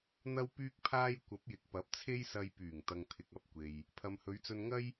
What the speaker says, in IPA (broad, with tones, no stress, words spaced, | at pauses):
n̪ɐ˥wpyː˥k̚pʰaː˥j kʷɐ˨˥p̚jɪ˨k̚pɐ˨˥p̚t͡sʰe˥j sɐ˧jpyː˨˩ŋt̪ɐ˨ŋ t̪ʰɪ˨k̚ɐ˨˥p̚ kʷe˨j | pʰɐ˨mhɵ˨˧ɥt͡sɵ˧nŋɐ˥j